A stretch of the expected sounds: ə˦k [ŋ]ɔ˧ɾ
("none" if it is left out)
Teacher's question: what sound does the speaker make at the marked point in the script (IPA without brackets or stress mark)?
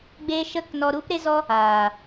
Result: n